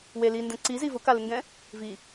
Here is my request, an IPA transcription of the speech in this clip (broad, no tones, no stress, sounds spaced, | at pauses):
w e l i n d ɛ̃ ǀ i z i v ʊ k a l ɪ ŋ ɡ ɛ̃ | v i